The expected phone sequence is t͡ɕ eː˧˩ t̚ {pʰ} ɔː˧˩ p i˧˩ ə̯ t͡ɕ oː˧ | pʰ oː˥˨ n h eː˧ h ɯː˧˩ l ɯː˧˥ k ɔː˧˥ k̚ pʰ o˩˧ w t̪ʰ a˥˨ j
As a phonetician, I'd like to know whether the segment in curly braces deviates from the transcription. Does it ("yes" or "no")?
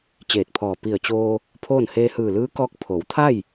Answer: no